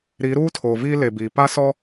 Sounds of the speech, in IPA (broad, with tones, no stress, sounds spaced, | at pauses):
ɾ i˨˦ ɾ uː˦ tʰ oː˨ v iː˦ l e˨ b iː˨ p a˦ s ɔ˦